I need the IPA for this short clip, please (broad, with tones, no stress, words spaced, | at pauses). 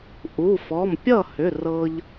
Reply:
ʔu˩˧˩fɔ˩˧˩mpʲʌ˥˩hʏ˩˧˩ rɤ˧ʎ